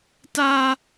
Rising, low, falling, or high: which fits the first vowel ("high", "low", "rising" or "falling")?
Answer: high